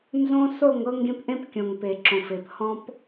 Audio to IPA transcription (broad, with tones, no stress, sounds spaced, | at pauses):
n z õ˦ s o˦˨ ŋ ɤ˦ ŋ ɡ ẽ˦ p ʔ ẽ˦ p kʲ õ˨ ŋ p e˨ ǁ õ˨ f e˨ p h ɔ̃˦ p